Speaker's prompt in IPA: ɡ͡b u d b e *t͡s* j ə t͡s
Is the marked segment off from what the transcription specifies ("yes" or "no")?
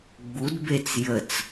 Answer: no